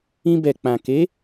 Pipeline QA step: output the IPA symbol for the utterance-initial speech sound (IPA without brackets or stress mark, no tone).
ĩ